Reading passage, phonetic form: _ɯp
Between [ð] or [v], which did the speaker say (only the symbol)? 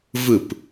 v